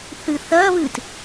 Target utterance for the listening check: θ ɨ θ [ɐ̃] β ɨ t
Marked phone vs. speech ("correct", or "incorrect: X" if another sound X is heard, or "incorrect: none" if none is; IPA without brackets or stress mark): incorrect: ɐ